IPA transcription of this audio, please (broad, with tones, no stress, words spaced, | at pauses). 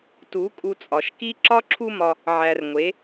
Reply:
tu˨˦ kʼu˧t͡sʼɒ˨ʃki˦ ǁɒ˦ǁʰu˦mɒ˧ | ʕæ˨r ŋʷe˨˦